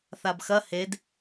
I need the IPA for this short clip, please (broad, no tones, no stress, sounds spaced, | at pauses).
θ a b x ɐ h e d